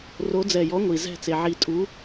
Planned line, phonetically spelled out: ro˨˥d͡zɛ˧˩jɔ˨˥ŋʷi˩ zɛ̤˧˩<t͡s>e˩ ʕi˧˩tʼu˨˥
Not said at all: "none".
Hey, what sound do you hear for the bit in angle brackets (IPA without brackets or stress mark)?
t͡s